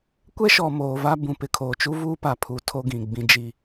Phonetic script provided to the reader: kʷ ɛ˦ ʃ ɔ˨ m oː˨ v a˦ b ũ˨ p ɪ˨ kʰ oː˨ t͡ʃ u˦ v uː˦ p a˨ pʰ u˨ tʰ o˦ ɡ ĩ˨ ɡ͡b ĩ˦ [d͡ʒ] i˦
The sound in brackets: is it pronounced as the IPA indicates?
yes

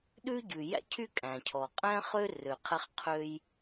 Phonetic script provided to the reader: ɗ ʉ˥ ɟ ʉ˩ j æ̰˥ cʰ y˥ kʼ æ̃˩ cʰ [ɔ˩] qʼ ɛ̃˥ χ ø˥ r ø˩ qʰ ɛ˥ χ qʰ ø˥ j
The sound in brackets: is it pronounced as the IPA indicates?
yes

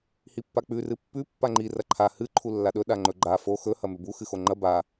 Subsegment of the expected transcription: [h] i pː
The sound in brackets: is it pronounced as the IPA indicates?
yes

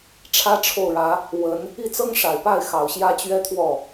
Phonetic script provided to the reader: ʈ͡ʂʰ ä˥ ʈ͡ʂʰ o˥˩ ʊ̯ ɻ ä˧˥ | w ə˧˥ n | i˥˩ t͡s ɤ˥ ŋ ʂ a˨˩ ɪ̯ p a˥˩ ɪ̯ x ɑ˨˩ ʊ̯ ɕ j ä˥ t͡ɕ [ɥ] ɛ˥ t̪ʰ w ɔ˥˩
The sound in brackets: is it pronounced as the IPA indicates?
yes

